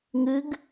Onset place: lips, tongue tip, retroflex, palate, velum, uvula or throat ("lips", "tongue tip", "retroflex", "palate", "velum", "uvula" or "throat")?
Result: velum